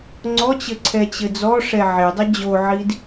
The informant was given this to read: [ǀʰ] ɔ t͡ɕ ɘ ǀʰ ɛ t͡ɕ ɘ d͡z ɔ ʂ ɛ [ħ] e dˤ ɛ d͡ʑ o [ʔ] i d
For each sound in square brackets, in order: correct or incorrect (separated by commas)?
incorrect, incorrect, incorrect